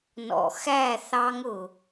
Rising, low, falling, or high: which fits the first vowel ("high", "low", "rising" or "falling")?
low